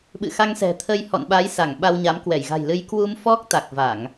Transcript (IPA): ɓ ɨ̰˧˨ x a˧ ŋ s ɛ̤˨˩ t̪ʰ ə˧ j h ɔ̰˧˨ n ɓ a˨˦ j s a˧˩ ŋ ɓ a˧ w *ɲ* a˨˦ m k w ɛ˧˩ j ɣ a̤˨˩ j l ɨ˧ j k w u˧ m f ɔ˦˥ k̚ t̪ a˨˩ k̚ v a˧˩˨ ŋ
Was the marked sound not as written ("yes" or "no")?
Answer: no